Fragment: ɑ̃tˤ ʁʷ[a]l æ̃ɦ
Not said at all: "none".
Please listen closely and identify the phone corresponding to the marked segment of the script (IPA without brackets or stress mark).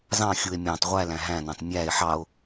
æ